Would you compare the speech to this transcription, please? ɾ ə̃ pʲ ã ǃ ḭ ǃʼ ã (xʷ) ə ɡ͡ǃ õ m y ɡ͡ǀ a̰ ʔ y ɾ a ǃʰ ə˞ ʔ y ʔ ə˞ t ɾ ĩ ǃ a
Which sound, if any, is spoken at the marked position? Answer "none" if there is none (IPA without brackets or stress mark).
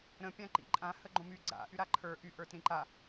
h